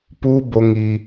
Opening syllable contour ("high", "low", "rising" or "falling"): high